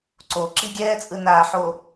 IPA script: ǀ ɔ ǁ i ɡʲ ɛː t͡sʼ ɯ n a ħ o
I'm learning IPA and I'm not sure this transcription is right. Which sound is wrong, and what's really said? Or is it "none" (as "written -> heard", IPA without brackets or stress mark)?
ɔ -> o